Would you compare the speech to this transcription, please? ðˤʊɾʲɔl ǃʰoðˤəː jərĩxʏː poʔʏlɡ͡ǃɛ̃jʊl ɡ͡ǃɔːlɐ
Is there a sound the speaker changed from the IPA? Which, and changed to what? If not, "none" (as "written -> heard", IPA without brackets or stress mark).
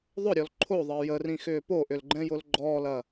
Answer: none